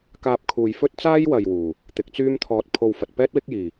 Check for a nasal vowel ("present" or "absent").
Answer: absent